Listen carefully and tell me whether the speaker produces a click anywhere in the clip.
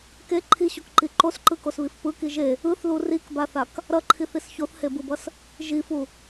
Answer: yes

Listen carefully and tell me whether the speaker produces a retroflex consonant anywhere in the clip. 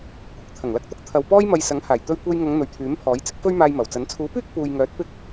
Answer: no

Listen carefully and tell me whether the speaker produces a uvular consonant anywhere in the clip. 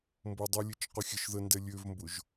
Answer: yes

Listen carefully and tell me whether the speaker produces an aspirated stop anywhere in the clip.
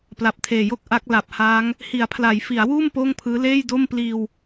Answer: yes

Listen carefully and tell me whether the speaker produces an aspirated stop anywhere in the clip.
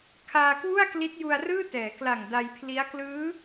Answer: yes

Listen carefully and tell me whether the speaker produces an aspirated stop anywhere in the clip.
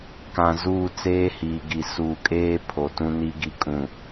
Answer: yes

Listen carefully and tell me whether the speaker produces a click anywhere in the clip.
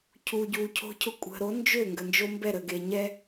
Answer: no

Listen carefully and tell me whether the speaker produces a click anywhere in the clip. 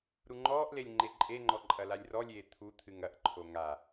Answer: yes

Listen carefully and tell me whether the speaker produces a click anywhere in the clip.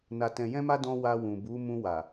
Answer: no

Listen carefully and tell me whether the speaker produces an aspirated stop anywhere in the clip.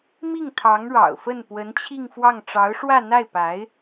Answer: yes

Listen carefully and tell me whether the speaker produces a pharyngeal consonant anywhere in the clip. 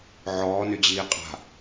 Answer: yes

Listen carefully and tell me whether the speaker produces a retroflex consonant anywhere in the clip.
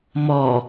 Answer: no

